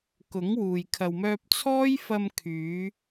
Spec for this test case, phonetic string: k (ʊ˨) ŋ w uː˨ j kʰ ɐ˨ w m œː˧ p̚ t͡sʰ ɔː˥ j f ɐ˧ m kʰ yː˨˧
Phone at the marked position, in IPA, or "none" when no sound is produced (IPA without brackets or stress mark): ʊ˨˥